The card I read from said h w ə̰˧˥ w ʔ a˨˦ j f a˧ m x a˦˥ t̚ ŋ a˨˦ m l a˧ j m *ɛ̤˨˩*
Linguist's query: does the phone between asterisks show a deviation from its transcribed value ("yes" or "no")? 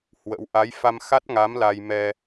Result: yes